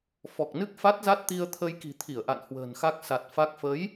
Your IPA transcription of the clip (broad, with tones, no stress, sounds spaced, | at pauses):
f ɔ˨˩ k̚ n ɨ˦˥ k̚ f a˦˥ t̚ z a˦˥ t̚ t̪ i˧ ə̯ t̪ʰ ə˧ j k i̤˨˩ t̪ʰ i˧˩ ə̯ ʔ a̰˧˨ n h w ə̤ː˨˩ n x a˦˥ k̚ s a˨˩ t̚ f a˦˥ k̚ f ə˨˦ j